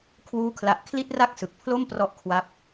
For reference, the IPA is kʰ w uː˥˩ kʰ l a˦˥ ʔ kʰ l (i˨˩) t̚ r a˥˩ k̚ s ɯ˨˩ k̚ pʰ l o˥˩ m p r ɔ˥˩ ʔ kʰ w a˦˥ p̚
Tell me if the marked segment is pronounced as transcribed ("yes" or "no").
no